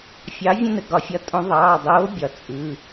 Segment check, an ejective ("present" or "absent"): present